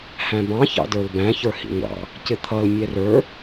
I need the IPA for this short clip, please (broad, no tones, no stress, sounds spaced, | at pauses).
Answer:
h æ̃ b ɑ̃ ç ɑ̰ d ə˞ l b æ̃ ç ə˞ h ḭ ŋʷ ɑ̰ | c ɪ t̪ʰ ʌ l mʲ ɛ r ə˞